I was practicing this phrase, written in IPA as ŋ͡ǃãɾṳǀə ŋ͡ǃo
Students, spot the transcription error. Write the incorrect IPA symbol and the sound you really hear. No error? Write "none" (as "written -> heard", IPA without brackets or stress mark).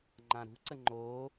none